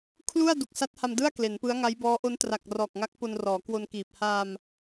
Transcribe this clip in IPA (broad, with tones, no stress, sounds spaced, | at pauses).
kʰ l u˥˩ a̯ d u˨˩ k̚ s a˦˥ t̚ h a˧ m d ɯ˥˩ a̯ k l e˩˦ n p ɯ˦˥ a̯ ŋ a˦˥ j b ɔː˦˥ ʔ o˦˥ n t r a˨˩ k̚ r ɔː˨˩ k̚ ŋ a˦˥ k̚ p o˧ n r ɔː˩˦ k w o˧ n k iː˨˩ p̚ h aː˧ m